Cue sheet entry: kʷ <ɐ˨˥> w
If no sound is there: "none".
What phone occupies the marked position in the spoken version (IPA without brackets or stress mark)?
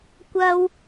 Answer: ɐ˥